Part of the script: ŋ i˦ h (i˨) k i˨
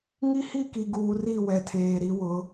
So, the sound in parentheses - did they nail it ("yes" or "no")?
no